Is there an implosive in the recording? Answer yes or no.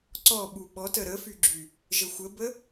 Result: yes